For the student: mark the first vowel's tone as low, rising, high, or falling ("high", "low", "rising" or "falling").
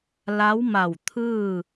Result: rising